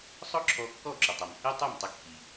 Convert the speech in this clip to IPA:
sˤʊ˥ǁʰɔ˧ kːɔ˥˩ǁʏ˩tˤɛ˩m hi˥tˤy˥˩mtˤɪ˧ kːi˩

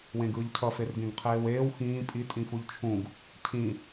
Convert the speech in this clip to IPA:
wẽɡɯːʎcʰʌ ferɡẽɡqʰeːweːw xĩː pʼi tʼĩfuʎt͡ʃʰũɡ | cʰĩ

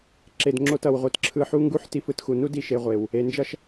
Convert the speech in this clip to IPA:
ǁe˨dŋ͡ǁo˧t ʌ˨wʁʷɯ˨tǁʰɯ˧ħu˦ ŋɡu˦ħti˧fɯ˧txu˨ nu˦d i˧ʃe˧ʁʷe˨w | e˨nd͡ʒʌ˦ʃ

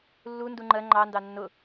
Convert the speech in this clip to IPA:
lːu nduŋ͡ǃɜ ŋ͡ǃɑ ndɑnːʊ

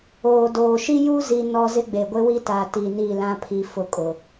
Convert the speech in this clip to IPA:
oː˨doː˨ ʃi˦ju˦ zi˦nɔ˦ zɪ˦ɡ͡be˨ ɡʷe˦wi˦ta˨ ti˨ ni˦˨lã˦ pʰi˨ fʊ˦˨kʼʊ˨

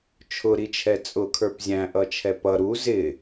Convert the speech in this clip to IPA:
t͡ʃʰʊɾit͡ʃʰɛ t͡sʼʊkʰə˞p zʲæ̃ʔʌt͡ʃʰɛ pʌ ɾu zɪ

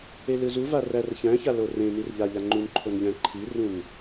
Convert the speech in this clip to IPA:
elɯzuva rærçæ̃ça lorẽnir ʎaʎa ŋ͡ǃunǃʰon ʎæ̃ǃʰirũn

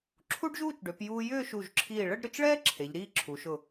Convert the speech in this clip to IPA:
ǁʰu˥ɖʒuː˥˧t͡ʃɖø˩˧p juː˧ jʏː˥˧ʃu˧˩ʒǁʰiː˧˩ ɭə˥˧ɖɾʏ˩˧t͡ʃɭɛː˥ ǁʰe˩˧ʎɾiː˥˧ǁʰu˩˧ʃʊ˧˩

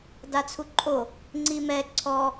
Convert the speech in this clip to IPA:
dat͡sʰuǃʼo | ŋ͡ǀimɛ ǀʰɔ

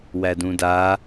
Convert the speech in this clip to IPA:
wædũda

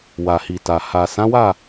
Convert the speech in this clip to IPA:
wa˨hi˨ta˨ ha˨ sã˨˦wa˦˨

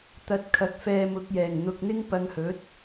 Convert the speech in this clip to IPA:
t̪ɐ˧t̚kʰɐ˨˥k̚ fɛː˧mʊ˨˥k̚jɛː˨˩ŋ n̪ʊ˨k̚n̪ɪ˥ŋ pɐ˧ŋhɵ˨˥t̚

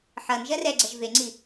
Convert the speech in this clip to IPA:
ħʌn ʒɜrɛɡ͡ǀɜʒ veŋ͡ǀi

